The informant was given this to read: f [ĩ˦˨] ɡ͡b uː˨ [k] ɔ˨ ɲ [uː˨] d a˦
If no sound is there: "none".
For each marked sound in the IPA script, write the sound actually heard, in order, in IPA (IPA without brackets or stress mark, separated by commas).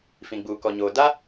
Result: ĩ˨, k, oː˨